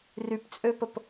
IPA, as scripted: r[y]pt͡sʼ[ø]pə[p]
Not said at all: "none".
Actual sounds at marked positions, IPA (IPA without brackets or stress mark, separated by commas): y, ø, p